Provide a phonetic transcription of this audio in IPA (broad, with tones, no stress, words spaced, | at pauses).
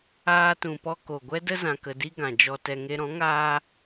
aː˧tũ˨pɔ˧ ko˨ɡʷɛ˦də˦ zã˧kə˧di˦ ɡã˨d͡ʒɔ˧tɛ˧ ŋe˧ɾɔ̃˨˦ŋaː˦